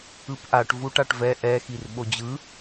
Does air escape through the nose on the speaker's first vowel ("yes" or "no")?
no